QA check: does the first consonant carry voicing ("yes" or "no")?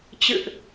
no